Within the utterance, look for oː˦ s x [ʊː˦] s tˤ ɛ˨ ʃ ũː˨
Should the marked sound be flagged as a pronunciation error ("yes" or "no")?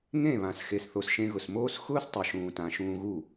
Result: no